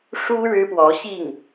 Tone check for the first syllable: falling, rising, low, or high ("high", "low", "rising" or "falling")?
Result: high